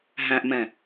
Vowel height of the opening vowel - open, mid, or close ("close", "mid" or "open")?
open